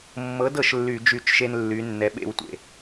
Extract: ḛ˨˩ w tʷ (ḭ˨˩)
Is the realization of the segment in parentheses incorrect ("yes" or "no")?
yes